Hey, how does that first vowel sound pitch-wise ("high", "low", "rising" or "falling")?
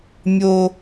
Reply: high